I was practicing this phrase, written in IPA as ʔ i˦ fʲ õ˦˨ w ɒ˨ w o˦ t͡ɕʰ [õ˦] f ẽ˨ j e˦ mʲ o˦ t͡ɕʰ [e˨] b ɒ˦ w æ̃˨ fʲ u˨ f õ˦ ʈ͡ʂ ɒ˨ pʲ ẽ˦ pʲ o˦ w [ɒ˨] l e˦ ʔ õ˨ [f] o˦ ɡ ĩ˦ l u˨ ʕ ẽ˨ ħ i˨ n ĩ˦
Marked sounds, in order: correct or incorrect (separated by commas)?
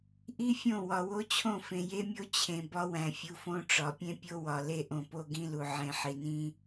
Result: incorrect, incorrect, correct, incorrect